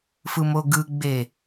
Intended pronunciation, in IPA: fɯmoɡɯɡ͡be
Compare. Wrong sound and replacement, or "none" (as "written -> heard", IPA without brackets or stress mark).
none